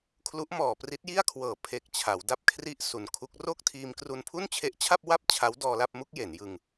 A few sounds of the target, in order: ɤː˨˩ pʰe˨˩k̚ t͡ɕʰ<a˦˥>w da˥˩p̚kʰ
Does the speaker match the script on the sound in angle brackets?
no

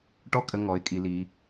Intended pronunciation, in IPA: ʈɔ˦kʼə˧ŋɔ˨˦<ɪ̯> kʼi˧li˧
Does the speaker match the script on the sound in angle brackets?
yes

